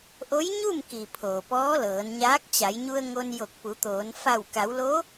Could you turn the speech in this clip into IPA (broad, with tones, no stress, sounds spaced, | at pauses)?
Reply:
ʔ o˧˥ j ɲ u˥˨ m k i˩ pʰ oː˩ p ɔː˧˥ l ɤː˩˧ n ɲ aː˧˥ k̚ t͡ɕ a˩˧ j ɲ u˧ ə̯ ŋ o˧ n j o˧˩ k̚ p u˩˧ t̪ oː˩˧ n f a˧˩ w k a˩˧ w l o˧˥